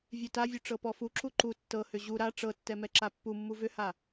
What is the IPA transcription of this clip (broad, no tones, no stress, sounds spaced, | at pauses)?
vʲ ʉ t a vʲ ʉ ʈ͡ʂ ɤ p ɔ f u ǁ u ǃ u tː ɤ h ʏ ʑ u ɾ a ʈ͡ʂ ɤ tː ɛ m ɛ ǁ a pː u mː u v ʏ h a